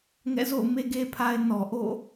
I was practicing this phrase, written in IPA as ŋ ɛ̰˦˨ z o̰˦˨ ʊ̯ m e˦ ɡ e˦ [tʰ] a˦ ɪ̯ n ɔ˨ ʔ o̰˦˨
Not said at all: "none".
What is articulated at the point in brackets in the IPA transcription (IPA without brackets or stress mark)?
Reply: pʰ